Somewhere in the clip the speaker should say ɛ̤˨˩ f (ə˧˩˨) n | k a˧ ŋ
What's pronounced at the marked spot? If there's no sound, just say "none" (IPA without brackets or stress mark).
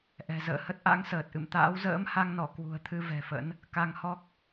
ə̰˧˥